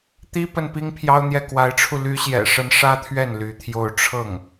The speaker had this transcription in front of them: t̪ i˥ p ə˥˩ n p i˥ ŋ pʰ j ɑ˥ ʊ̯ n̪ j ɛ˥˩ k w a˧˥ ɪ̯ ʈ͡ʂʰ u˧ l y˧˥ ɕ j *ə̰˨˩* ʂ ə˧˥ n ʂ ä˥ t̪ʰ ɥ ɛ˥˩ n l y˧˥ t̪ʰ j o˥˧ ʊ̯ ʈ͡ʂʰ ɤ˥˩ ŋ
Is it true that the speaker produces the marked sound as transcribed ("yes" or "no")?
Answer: no